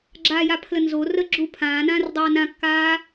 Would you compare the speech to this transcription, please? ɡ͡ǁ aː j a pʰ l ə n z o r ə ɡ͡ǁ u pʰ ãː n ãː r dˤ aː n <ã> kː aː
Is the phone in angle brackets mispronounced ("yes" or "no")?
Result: no